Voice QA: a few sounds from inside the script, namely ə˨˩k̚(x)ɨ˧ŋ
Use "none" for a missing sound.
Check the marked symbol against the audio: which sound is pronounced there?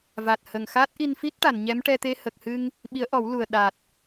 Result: h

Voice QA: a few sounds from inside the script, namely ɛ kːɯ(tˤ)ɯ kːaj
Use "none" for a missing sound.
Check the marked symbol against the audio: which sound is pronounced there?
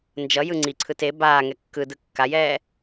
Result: d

